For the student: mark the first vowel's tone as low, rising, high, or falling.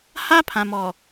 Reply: high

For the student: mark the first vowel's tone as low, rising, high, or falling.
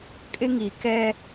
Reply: high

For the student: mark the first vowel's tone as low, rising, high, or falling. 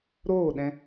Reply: falling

